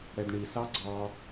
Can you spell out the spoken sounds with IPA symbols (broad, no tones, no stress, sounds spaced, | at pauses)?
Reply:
ɽ ɛ d ɳ i s ɑ ɡ͡ǀ ɑ